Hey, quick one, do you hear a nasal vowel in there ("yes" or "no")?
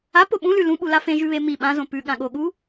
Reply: yes